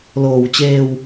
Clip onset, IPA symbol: l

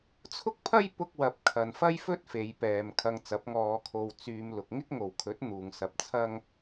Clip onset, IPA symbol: t͡sʰ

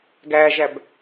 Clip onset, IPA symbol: ɡ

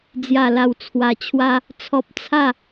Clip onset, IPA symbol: d͡z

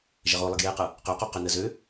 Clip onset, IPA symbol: ʒ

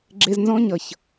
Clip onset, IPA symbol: ɡ͡ǁ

